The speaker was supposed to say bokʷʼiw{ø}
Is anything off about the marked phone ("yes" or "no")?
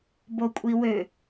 no